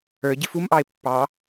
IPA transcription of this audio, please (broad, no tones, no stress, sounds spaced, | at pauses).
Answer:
ə˞ ɟ ɪ f u m ʔ ɑ e̯ pː ɑ